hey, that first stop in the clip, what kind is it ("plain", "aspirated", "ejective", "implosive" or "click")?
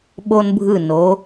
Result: implosive